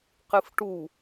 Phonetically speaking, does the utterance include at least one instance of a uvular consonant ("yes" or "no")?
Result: yes